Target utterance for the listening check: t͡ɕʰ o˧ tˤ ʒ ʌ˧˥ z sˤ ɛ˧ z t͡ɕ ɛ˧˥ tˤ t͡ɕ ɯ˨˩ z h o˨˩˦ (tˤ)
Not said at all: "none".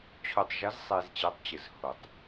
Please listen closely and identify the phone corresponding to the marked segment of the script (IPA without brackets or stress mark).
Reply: tˤ